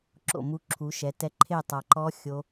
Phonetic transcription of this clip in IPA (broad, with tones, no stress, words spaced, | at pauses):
ǁo̰˧˩mu˧ ǁʰu˩˧ʃɛ˩˧ tɛ˧ ǃʰe˥˧tˤa˧ǃɔ˦˥ xʲo˧